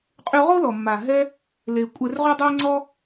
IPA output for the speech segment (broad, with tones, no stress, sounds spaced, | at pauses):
qʼ y˧ ʁ o˦ l ɔ˨ mː a˨ ɦ ɛ˧ | l e˧ kʷʼ ɛ˧ r ʁ y˦ dˤ e˦ ŋ͡ǀ ɔ˦